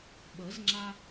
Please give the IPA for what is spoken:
ɓ ə˩˥ z ŋ͡ǁ a˧

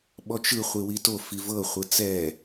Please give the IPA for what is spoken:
ɓ ɔ t͡ʃ ɯ χʷ i w i t o f i v ɤ χʷ ɯ t͡s ɛ

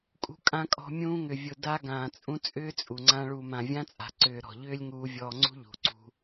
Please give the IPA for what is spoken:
kʼ ṳ˧ kʼ ã˧ kʼ ɔ̤˧ mʲ ũː˧ ŋ ʏ˨ vʲ ʊ˨ d a˧ ɡ ãː˨ t͡sʼ ũ˧ t͡sʼ ʏː˦ t͡sʼ u˨ ŋ͡ǀ ã˧ ɭ uː˨ m ã˨ vʲ ã˧ t͡sʼ a̤˨ ǀ ʏː˨ ɾ ɔ̤˨ ʎ ʏː˦ lʲ ŋ uː˧ vʲ ɔː˧ ŋ͡ǀ ṳ˦ ʎ ṳ˨ ǀ ṳ˧

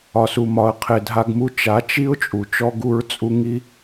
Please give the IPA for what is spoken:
ɒ˨ s u˨ m ɒ˨ ə̯ qʰ e˨ dʱ a˧ ɡ m u˧ t͡ʃ a˨˦ t͡ʃ i˦ ʊ̯ t͡ʃʼ u˨ t͡ʃ ɔ˦ ɡ u˦ ɹ t͡sʼ u˦ ŋ i˧

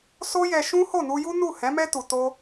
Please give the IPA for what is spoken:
s o˦ j ɛ˧ ʃ ũ˦ h o˦˨ n u˧ j u˦ n u˦˨ h ɛ̃˨˦ m ɛ˦ t u˧ t o˦

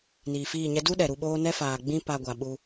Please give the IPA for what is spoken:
n iː˨ f iː˦˨ ɲ ɛ˦ d u˦ ɗ ɛ˨ ɾ u˧ ɓ oː˦ n ɛ˦ f aː˨ ɡ͡b ĩ˦ p a˧ ɡʷ a˨ ɓ u˧

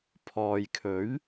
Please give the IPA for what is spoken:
pʰ ɔː˨ j kʰ ɵ˨˥ ɥ

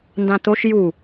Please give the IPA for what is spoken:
n d ã t̪ o ʃ j u

